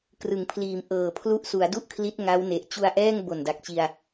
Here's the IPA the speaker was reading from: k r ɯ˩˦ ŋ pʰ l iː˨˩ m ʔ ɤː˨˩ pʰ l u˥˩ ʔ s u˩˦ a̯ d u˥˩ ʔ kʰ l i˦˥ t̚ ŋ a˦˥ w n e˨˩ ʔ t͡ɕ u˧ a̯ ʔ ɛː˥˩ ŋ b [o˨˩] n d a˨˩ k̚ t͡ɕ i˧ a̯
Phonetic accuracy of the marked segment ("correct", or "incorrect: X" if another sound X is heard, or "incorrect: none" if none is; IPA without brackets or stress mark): correct